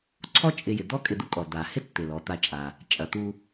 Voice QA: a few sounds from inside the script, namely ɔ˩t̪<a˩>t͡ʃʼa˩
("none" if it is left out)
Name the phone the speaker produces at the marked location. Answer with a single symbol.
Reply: a˨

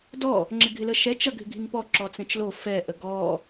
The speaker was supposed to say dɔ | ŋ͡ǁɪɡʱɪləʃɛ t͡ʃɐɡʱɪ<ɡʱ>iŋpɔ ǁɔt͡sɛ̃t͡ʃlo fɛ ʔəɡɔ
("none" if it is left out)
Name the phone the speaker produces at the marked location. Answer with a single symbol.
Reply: ɡʱ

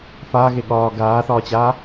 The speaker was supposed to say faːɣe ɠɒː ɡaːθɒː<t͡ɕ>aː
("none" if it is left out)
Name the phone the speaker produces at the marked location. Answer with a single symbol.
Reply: t͡ɕ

